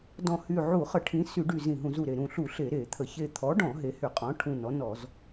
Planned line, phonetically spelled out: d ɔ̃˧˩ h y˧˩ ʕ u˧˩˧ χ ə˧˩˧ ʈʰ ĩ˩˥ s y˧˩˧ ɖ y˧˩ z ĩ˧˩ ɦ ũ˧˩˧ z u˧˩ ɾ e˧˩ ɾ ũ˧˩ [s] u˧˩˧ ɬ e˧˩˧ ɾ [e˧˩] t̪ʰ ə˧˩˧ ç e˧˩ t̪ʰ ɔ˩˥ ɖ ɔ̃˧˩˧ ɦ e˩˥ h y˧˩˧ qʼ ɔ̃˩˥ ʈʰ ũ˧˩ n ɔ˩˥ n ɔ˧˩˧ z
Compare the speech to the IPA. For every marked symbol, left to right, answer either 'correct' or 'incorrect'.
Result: incorrect: ɬ, incorrect: e˧˩˧

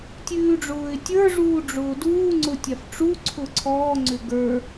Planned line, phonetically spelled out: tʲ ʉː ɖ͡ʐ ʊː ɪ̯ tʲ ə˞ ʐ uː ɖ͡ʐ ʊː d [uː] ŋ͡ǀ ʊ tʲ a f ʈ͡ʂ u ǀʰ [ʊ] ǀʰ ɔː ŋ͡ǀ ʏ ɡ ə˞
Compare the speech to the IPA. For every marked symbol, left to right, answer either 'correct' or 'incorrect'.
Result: correct, correct

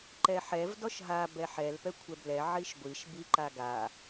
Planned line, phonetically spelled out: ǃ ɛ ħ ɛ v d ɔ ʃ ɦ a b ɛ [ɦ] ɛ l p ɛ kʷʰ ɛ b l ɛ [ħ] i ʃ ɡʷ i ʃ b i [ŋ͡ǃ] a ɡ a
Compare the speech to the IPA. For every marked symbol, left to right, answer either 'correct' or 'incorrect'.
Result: incorrect: ħ, incorrect: ʕ, incorrect: ǃ

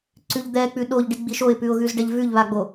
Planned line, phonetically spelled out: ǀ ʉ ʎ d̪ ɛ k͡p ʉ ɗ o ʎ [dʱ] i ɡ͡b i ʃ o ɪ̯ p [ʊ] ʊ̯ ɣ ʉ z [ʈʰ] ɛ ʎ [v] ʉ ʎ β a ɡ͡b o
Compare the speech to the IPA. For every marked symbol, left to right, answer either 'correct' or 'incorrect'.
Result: incorrect: ɖ, incorrect: ʉ, incorrect: ɖ, correct

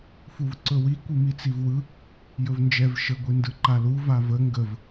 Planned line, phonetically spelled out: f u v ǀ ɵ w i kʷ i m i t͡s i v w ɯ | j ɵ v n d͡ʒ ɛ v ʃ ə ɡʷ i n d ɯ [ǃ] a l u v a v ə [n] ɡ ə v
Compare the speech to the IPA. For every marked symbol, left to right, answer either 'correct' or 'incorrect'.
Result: correct, incorrect: ŋ

